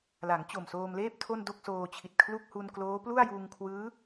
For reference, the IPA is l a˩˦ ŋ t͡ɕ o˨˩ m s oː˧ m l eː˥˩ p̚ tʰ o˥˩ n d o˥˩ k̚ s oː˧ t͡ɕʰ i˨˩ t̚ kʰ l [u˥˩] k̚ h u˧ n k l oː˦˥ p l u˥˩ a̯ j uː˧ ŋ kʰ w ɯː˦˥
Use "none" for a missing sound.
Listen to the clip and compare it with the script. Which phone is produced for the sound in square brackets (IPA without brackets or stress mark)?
u˥˩